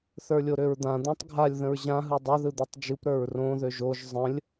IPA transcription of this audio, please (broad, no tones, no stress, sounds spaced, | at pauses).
θ ə˞ lʲ o ɾ ø ɹ d̪ ã d̪ ã tˤ ɡʱ a lʲ ð ə̃ ɹ ʑ ã ɦ ɯ dˤ ɘ ð ɯ d̪ ɯ tˤ d͡ʒ ɯ p ɾ ə˞ ɹ r õ ð ø ʒ o ʒ zˤ ə̃ lʲ